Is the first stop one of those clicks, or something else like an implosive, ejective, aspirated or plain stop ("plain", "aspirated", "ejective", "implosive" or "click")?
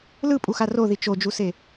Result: ejective